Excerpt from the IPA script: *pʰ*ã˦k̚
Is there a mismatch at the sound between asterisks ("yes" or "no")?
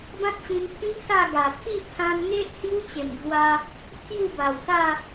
yes